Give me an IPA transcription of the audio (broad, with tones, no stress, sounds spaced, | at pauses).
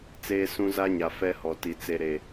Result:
t͡s eː˦ s ũ˦ z a˦ ɲ a˨ f ɛ˦ h ɔ˨ t i˨ t͡s e˨ ɾ e˨